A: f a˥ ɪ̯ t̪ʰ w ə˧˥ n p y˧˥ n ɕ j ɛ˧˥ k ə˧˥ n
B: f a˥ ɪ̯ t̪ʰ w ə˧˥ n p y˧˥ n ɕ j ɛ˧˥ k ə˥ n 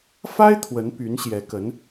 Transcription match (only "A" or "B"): A